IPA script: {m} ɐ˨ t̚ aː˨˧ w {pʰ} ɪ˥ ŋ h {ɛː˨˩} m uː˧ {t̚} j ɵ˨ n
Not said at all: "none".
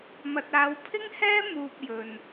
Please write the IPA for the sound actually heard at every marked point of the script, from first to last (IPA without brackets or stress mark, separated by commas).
m, pʰ, ɛː˥, p̚